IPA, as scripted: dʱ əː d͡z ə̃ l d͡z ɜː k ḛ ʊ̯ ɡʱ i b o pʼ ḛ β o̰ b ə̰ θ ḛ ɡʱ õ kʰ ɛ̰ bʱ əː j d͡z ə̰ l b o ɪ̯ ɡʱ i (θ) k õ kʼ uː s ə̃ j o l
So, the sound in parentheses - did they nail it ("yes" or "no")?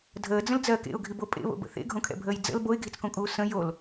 no